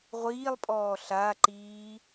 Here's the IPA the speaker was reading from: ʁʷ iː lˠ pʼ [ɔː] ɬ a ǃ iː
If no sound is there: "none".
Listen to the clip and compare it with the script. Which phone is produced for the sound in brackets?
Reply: ɔː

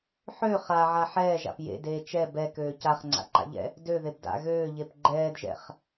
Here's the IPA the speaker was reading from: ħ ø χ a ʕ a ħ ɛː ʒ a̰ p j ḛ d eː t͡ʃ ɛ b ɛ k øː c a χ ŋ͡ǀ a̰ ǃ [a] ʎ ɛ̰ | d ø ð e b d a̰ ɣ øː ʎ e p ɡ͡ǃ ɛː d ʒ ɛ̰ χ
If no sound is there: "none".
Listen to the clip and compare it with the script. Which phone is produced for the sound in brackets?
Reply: a̰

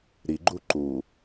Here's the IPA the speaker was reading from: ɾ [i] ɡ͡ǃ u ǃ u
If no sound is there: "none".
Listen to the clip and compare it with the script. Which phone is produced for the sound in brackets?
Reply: i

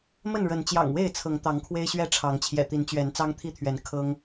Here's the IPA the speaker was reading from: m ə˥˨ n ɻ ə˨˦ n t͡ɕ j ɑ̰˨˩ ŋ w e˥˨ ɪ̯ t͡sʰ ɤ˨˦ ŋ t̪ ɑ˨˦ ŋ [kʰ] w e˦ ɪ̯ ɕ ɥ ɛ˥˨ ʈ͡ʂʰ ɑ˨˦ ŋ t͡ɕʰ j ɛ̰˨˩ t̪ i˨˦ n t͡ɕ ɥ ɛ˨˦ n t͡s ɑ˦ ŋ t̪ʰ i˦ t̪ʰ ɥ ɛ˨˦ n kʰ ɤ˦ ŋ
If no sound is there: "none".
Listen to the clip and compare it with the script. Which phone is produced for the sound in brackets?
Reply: kʰ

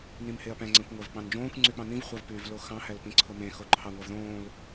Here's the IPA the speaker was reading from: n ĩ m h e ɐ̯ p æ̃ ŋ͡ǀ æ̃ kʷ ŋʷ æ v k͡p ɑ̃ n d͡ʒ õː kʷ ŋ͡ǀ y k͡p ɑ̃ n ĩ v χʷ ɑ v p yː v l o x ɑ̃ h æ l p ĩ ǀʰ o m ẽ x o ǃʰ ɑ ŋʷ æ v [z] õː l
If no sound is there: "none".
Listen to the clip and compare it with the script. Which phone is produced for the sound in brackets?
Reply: ð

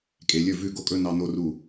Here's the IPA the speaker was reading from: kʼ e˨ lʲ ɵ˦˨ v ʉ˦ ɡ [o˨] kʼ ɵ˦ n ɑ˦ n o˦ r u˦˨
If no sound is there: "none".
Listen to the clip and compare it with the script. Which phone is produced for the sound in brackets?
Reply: o˦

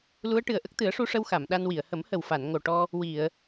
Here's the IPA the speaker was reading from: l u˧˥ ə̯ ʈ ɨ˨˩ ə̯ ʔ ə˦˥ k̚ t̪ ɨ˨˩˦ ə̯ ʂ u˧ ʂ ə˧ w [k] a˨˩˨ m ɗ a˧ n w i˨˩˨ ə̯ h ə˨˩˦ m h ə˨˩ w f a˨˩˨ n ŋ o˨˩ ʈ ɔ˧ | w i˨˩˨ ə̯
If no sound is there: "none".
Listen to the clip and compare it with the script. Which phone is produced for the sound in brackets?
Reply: x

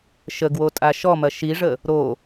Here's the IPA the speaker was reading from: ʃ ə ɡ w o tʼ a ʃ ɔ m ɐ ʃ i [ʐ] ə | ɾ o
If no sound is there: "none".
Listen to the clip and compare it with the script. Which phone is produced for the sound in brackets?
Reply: ʐ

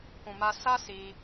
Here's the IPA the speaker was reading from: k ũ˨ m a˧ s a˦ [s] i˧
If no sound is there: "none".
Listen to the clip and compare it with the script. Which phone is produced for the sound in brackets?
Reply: s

